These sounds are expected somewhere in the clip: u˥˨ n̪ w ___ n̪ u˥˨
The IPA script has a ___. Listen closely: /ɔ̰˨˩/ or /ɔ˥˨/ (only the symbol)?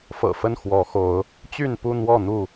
ɔ˥˨